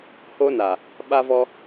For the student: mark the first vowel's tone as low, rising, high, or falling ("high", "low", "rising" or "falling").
high